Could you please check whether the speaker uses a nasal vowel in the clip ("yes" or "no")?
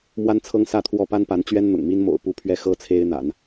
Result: no